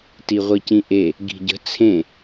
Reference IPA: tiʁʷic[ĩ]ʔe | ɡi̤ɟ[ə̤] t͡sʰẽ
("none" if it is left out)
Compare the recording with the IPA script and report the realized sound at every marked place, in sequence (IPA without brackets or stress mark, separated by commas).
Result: ĩ, ə̤